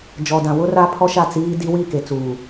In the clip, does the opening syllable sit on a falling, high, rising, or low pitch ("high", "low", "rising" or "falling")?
low